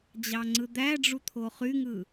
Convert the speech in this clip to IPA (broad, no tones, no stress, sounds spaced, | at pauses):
d͡ʑ ɑ ŋ͡ǀ ɯ d̪ æ ɖ͡ʐ u t̪ʰ o χ y ŋ ɯ